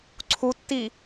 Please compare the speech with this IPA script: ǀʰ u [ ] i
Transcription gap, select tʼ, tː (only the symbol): tː